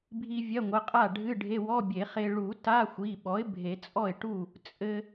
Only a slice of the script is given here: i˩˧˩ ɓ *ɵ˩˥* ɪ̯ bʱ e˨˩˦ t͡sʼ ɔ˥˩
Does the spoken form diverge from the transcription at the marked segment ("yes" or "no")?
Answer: yes